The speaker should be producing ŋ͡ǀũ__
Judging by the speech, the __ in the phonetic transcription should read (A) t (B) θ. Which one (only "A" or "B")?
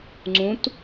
A